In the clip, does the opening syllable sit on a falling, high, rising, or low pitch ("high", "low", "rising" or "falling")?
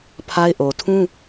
high